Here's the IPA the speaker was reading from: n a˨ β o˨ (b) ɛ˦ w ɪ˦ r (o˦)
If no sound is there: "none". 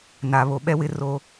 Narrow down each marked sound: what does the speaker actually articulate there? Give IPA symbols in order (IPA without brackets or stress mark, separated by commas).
ɓ, o˦